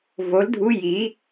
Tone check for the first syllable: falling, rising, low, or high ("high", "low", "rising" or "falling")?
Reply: rising